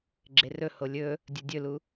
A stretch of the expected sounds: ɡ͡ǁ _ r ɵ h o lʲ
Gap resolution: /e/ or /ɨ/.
e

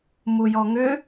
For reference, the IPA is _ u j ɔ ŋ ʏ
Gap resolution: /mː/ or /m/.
m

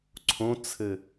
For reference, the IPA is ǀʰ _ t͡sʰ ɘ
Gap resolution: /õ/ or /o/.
õ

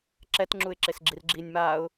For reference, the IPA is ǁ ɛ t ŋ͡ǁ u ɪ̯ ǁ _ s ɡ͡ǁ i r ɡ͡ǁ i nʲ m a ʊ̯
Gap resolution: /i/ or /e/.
e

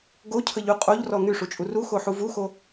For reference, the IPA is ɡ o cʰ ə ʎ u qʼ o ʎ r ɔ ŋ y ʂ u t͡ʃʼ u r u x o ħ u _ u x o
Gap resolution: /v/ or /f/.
v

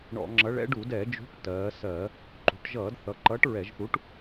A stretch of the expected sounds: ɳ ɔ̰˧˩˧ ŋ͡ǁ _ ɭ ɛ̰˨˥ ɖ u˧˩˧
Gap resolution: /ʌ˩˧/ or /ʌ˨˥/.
ʌ˨˥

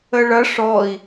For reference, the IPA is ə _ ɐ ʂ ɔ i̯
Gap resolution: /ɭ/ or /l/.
ɭ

